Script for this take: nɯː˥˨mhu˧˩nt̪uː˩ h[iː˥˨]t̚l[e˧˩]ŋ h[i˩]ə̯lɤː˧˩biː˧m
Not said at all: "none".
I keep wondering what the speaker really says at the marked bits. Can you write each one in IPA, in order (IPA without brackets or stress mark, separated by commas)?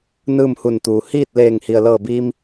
iː˥˨, eː˧˩, i˩